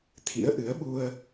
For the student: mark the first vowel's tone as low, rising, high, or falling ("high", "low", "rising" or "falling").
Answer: rising